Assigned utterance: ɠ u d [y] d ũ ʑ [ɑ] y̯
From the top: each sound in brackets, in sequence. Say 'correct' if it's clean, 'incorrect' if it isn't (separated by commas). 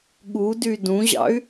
correct, incorrect